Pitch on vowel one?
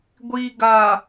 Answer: low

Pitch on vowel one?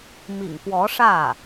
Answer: low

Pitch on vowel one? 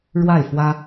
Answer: falling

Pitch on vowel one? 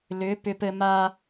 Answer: rising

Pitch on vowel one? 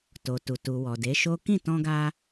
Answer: low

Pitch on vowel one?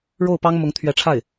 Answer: falling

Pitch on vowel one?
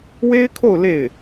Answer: high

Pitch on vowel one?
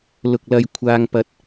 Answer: low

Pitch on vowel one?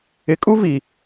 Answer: rising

